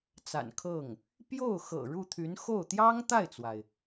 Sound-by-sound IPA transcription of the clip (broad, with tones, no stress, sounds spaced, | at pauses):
t͡s a̰˨˩ n kʰ ɤ˥˩ ŋ | p j o˥˩ ʊ̯ x ɤ̰˨˩ ɻ u˥˩ t̪ʰ y˧˥ n x o˥˩ ʊ̯ t̪ j ɑ˥ ŋ t̪ a˥˩ ɪ̯ t͡s w a˩ ɪ̯